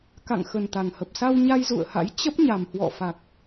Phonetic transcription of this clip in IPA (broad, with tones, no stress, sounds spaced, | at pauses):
k a̰˧˨ ŋ x ə˨˩ n t̪ a˨˩ ŋ h ə˨˩ p̚ s a˧ w ɲ a˧ j z ṵ˧˨ ə̯ h a̰˧˥ j t͡ɕ ə˦˥ p̚ ɲ a˨˩ m h w ɔ̰˧˨ f a˨˩ k̚